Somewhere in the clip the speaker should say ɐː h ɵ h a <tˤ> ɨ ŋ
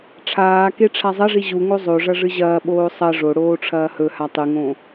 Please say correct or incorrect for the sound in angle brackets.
correct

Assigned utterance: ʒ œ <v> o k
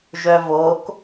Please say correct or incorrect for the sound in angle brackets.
correct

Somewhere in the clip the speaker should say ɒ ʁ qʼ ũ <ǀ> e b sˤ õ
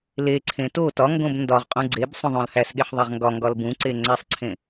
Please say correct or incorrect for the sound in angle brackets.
incorrect: ɡ͡ǀ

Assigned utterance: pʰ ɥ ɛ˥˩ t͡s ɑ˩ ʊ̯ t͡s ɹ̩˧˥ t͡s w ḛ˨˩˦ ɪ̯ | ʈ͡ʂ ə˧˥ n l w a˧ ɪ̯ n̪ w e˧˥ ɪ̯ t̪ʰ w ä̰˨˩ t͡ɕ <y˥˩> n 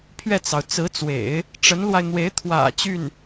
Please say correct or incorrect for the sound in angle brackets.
correct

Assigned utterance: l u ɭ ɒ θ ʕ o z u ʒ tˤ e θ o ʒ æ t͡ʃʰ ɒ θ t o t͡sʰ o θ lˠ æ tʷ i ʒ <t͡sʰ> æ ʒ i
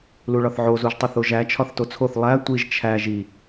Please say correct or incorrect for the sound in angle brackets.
incorrect: t͡ʃʰ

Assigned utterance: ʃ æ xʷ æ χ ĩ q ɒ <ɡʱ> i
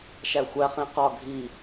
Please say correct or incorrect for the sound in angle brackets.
correct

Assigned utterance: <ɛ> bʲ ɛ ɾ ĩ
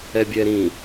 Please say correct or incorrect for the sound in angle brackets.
correct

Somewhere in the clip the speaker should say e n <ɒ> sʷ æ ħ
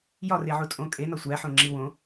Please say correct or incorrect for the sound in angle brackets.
correct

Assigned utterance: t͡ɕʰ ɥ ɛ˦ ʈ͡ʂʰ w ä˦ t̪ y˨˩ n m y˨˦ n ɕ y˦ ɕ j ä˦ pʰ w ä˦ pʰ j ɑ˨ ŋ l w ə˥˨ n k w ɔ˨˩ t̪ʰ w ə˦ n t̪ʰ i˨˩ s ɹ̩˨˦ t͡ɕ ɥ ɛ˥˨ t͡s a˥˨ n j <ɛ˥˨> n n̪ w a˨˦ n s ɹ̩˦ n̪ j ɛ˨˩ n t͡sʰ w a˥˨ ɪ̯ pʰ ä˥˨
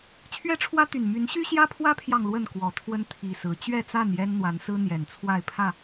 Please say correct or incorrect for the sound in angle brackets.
incorrect: ɛ˦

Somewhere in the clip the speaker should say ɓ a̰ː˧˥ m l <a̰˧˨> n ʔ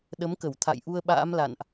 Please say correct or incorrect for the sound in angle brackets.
correct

